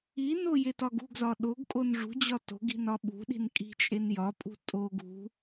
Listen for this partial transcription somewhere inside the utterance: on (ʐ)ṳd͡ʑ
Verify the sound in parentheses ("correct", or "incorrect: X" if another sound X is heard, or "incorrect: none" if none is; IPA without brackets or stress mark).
correct